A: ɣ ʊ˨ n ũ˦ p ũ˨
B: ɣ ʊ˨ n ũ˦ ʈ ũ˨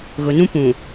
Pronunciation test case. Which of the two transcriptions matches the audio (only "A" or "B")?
A